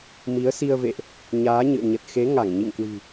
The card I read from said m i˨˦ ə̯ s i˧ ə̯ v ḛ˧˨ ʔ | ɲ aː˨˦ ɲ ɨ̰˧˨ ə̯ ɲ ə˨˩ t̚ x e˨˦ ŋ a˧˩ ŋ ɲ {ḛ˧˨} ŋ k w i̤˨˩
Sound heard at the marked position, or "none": ḭ˧˨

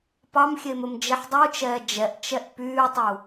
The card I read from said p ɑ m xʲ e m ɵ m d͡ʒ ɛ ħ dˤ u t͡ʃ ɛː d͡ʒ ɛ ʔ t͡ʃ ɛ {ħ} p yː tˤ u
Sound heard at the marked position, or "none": ʔ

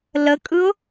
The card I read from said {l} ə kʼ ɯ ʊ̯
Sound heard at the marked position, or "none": l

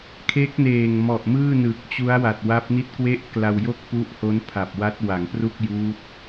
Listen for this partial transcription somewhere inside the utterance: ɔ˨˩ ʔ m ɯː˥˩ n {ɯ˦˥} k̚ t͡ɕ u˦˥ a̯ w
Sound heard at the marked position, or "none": ɯ˨˩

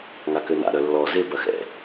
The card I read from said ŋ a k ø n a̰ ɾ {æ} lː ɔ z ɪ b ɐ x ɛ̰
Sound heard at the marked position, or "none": œ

